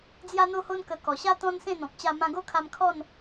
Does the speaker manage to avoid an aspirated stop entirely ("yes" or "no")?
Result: no